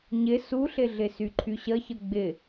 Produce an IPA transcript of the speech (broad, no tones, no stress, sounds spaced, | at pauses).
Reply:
ɲ ɪ s u ɬ ɪ ɮ ɪ s y ǃʰ y ɕ ə ç ə ɡ͡b ɪ